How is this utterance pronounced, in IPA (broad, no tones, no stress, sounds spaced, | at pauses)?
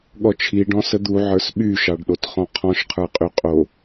ɠ ɔ t͡ʃʰ i ɖ ɔ̃ s ə d̪ u ʕ ə˞ s ɓ y ʃ ɑ ɖ ɗ o t χ ɔ̃ qʰ ɔ̃ ʃ qʰ ə˞ qʼ y qʼ o